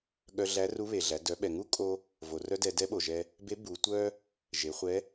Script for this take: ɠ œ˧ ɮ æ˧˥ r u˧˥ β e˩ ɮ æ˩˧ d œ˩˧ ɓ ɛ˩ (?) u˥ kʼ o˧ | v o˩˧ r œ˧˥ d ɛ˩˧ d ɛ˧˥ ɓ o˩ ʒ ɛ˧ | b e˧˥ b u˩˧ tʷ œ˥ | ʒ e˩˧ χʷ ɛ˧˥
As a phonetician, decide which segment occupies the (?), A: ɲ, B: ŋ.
B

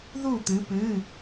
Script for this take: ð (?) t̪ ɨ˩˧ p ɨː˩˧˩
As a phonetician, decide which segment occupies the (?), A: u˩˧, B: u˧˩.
B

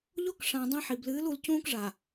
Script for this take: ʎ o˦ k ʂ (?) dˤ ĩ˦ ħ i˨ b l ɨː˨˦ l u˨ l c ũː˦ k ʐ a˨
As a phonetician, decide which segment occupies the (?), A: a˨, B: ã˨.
B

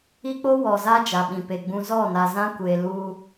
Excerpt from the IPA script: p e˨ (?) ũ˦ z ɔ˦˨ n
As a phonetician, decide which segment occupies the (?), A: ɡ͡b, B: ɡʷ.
A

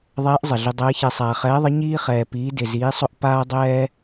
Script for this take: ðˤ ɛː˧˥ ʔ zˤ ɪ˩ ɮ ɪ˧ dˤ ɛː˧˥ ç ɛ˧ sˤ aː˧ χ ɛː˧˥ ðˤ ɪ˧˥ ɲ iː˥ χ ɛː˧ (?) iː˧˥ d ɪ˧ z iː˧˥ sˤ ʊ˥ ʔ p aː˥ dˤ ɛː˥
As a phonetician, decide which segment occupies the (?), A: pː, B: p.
B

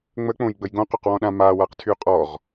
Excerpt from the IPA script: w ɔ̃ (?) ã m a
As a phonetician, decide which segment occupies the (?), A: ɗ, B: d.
A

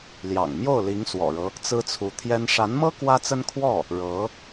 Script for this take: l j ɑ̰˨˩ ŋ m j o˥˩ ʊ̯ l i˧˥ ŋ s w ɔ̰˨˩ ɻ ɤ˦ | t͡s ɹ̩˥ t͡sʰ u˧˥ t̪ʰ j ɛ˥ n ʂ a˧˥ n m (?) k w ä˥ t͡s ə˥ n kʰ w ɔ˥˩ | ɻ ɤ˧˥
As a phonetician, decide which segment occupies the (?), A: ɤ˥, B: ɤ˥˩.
A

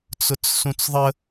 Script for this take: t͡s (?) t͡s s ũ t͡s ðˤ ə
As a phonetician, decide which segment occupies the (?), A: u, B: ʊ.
B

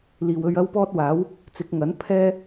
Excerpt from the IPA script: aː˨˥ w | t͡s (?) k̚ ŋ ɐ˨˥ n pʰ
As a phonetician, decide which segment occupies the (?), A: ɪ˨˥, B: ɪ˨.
A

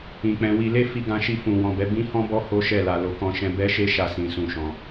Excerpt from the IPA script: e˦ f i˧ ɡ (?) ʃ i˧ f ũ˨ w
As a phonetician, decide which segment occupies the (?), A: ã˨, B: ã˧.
B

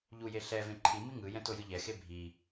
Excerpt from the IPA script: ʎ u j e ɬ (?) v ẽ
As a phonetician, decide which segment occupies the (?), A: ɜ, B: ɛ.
B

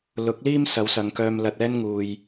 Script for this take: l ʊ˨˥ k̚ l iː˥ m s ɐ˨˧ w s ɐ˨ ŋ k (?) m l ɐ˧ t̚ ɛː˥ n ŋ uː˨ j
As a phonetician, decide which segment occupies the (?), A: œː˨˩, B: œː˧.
B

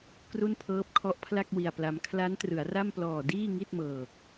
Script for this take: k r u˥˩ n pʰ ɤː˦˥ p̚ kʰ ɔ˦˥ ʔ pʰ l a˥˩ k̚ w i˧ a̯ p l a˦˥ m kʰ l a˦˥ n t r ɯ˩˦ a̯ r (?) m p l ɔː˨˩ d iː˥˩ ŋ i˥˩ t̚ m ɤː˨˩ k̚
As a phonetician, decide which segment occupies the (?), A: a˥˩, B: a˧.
A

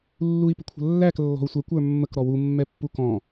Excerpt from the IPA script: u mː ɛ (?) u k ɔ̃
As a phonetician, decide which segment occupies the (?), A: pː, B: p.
A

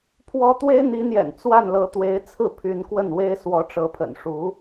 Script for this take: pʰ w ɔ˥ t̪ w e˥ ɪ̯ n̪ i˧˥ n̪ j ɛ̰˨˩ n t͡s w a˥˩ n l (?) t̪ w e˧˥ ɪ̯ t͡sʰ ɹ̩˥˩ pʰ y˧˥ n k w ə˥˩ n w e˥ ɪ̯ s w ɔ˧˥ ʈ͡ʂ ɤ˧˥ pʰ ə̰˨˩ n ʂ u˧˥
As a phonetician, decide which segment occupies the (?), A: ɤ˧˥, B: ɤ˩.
A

